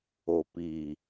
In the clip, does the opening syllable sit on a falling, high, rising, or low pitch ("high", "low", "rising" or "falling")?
low